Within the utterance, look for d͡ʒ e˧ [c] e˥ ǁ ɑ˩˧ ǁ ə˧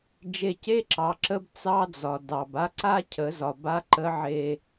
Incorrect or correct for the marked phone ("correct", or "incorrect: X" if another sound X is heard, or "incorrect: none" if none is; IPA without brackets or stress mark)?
correct